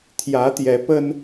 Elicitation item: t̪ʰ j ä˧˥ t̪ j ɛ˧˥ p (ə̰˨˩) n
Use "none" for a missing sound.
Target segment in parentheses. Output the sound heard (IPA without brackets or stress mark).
ə˥